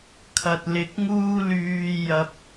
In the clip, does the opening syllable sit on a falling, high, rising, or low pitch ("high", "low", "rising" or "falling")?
low